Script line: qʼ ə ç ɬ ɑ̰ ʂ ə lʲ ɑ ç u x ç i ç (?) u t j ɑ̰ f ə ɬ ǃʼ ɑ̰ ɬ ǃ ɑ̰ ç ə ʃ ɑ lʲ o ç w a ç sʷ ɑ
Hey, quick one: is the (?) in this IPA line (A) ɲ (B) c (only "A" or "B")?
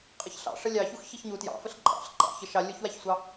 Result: A